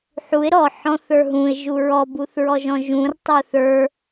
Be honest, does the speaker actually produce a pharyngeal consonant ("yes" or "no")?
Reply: yes